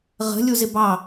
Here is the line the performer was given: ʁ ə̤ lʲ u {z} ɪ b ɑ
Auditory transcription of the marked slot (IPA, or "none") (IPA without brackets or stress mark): z